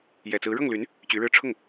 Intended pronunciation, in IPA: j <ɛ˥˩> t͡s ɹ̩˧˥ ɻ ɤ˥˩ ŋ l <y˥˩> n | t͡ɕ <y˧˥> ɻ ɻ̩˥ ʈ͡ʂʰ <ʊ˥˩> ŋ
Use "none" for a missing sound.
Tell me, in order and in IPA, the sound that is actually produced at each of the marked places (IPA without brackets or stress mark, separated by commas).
ɛ˨˩, y˧˥, y˧˥, ʊ˥˩